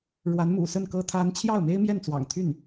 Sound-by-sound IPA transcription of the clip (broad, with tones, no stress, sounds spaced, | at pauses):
ɻ w a˧˥ n m ṵ˨˩ s ə˥˩ n k ɤ˥ t̪ʰ a˥ n t͡ɕʰ j ɑ˥˩ ʊ̯ m e˥ ɪ̯ m j ɛ˥˩ n t͡s w ɑ̰˨˩ ŋ t̪ʰ y˥˩ n